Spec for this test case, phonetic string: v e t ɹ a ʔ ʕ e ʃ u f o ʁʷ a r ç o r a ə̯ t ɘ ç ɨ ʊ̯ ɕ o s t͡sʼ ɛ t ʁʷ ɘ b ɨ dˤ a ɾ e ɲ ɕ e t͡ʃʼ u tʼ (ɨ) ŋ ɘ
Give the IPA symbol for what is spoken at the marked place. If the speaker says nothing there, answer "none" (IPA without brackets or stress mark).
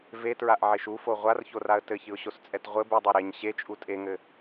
e